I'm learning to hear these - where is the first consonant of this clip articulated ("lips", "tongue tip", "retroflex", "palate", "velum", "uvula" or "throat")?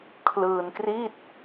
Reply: velum